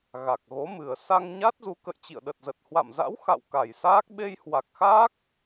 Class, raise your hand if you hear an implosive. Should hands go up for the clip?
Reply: yes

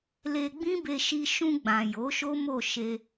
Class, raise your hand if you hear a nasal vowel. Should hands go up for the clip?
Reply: yes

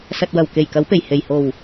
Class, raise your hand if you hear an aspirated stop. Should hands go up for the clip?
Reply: no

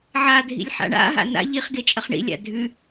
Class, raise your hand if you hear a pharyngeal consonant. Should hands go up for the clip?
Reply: yes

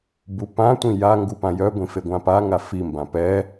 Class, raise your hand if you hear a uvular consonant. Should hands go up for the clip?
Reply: no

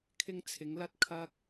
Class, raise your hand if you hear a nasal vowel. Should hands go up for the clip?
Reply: no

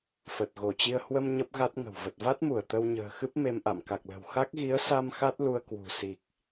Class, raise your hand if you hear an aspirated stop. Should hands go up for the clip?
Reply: no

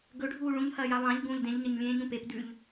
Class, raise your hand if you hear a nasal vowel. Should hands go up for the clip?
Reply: yes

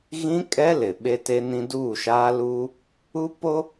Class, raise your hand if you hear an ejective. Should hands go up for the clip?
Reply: yes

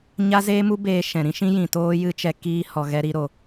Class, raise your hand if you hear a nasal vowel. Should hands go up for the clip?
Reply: yes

